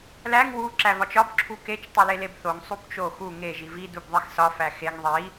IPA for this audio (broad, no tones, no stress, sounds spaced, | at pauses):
l æ ŋ w u ǁ æ v ɒ t͡ʃ ɒ b ǁʰ u k e t͡ʃ tˤ i l e l e b θ o ŋ sˤ u b t͡ʃ o x u ŋ e ʒ i v i d u b ðˤ i x s ɒ f æ x e ŋ ðˤ i